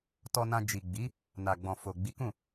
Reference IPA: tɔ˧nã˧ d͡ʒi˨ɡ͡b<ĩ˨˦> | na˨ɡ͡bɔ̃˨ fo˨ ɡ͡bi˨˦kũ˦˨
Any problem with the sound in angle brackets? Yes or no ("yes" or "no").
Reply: yes